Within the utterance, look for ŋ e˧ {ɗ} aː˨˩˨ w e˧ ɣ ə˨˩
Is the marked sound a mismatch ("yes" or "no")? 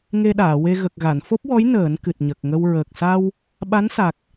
no